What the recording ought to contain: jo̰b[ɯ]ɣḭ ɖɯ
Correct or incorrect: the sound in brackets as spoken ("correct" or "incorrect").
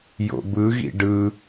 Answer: correct